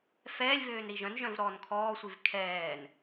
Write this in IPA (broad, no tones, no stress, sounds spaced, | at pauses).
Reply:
f ɛː lʲ v øː n ɾ i ʒ œ̃ n ʒ œ̃ v ɾ ɔː n kʰ ɔː sʷ i v kʰ ɛː n